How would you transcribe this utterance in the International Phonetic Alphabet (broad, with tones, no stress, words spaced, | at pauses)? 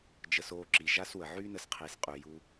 d͡ʒə˧soː˧ǁi˨ ʒa˦swə˨ ʕyː˦nə˧sqʰiː˨s qʼy˨ju˧